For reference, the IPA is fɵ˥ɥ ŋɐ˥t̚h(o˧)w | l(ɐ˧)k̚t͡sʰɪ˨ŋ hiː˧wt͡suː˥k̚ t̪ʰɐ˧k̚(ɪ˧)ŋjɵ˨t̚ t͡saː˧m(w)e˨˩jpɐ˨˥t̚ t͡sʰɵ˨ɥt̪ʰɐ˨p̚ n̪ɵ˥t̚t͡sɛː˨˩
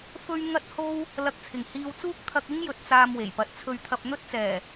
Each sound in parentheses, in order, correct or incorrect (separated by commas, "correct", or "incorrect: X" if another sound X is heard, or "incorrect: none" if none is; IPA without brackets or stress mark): incorrect: o˥, correct, incorrect: ɪ˥, correct